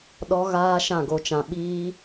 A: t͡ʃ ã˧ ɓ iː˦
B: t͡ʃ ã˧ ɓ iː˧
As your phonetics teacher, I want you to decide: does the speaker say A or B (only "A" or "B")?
A